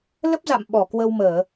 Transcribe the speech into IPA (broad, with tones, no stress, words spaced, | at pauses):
lə˦˥p̚za̰˧˨m ɓɔ˧˩kwə˧wməː˧˩˨